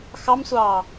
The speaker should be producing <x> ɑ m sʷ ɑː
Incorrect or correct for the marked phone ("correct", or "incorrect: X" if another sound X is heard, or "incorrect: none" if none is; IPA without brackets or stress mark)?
correct